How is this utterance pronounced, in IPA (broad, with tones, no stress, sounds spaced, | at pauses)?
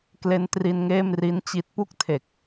k l e˦˥ n t r i˧ n ŋ eː˥˩ m r i˦˥ n t͡ɕ i˦˥ t̚ p u˥˩ k̚ tʰ e˨˩ k̚